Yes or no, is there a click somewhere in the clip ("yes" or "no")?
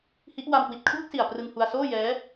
no